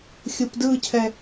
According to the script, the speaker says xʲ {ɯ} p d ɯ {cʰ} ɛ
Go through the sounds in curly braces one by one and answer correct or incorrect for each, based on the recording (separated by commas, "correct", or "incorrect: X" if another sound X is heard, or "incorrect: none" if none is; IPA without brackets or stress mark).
correct, correct